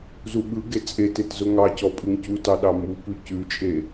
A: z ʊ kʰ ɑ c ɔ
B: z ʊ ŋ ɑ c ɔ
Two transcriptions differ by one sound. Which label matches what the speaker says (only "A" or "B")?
B